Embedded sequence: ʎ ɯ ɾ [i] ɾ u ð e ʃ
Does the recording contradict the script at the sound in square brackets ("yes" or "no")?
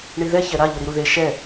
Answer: no